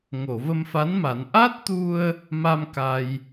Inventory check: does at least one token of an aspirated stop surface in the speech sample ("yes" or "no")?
no